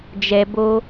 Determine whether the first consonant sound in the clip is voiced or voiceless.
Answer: voiced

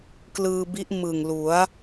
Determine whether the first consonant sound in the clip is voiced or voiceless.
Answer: voiceless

